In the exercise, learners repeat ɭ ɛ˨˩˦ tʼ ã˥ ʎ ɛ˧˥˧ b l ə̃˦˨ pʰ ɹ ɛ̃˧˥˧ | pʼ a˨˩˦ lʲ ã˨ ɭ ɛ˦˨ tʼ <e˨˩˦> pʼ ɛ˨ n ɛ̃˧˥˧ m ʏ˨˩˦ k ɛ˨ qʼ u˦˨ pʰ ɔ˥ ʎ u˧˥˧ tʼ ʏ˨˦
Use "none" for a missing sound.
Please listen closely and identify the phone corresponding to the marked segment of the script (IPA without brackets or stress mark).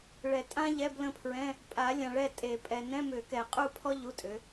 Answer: e˨˩˦